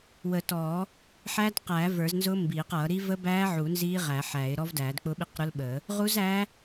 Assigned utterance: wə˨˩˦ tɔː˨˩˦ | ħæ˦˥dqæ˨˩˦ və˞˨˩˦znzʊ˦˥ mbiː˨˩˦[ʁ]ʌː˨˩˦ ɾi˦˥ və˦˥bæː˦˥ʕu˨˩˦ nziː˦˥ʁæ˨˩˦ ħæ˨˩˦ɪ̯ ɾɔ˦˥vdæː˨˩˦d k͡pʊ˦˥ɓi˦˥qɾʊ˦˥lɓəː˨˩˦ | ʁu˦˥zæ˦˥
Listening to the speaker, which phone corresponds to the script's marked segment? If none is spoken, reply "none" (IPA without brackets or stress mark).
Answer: q